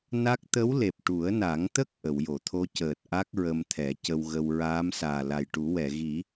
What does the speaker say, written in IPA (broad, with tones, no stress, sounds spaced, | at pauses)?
n a˦˥ k̚ t̪ ə˧˥ w l e˨˩ p̚ ʈ u˨˩˦ ə̯ n a˨˩˦ ŋ t̪ ə˦˥ k̚ ʔ ə˨˩˨ w j o˨˩˨ t̪ʰ o˧˥ c əː˨˩ t̚ ʔ a˦˥ k̚ ɹ ə˧ m t̪ʰ ɛ˨˩˦ c ə˧ w ɣ ə˧ w ɹ aː˧˥ m s aː˨˩ l a˨˩ j ʈ u˨˩˦ w ɛ˨˩˨ ɣ i˨˩˦